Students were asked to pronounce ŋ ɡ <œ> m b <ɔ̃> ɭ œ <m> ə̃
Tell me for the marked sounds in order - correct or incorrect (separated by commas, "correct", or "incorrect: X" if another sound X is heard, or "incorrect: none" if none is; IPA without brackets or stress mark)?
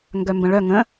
correct, incorrect: ə̃, incorrect: ŋ